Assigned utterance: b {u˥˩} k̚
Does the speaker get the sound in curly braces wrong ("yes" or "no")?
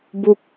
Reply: no